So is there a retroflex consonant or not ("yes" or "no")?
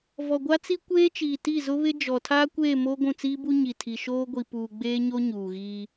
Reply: no